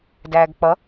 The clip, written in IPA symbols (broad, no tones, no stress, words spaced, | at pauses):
dæːɡk͡pʌ